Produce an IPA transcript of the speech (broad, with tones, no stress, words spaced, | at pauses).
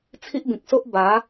t͡sʰi˦ʔbĩ˨k̚so˦ʔ ba˨˦